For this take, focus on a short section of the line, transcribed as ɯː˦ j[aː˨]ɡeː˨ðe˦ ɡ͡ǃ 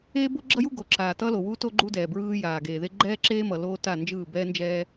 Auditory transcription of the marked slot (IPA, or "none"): aː˨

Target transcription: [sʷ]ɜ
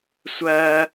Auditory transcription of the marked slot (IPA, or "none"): sʷ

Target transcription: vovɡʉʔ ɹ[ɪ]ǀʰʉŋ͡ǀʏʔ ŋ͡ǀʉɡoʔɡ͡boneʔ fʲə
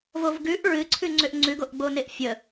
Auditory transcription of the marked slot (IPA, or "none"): ɨ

